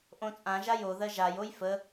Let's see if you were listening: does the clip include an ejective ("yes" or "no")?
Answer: yes